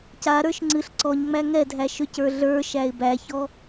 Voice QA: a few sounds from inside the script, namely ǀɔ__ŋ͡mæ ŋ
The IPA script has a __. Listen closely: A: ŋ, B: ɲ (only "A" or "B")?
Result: B